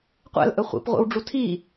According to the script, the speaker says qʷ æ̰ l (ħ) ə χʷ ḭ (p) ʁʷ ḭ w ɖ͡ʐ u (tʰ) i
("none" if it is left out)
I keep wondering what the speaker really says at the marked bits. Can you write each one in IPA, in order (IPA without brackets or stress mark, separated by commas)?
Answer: ʔ, p, tʰ